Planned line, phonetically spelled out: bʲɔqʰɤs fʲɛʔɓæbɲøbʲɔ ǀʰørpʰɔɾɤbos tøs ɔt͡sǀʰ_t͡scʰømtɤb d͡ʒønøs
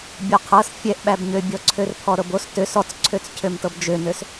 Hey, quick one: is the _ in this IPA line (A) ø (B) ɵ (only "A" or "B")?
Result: A